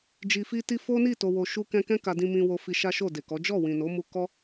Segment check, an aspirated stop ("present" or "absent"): absent